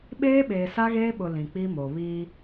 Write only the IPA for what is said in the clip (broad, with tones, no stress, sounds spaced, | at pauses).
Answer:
ɓ eː˦ ɓ eː˨ s a˦ ɣ eː˦ ɓ ʊ˨ l ĩ˨ k͡p i˦ m o˨ β iː˦